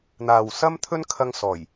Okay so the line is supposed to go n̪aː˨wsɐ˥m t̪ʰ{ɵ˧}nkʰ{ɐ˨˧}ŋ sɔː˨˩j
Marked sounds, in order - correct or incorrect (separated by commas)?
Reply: incorrect, incorrect